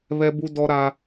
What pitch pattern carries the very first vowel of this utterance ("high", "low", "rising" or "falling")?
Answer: high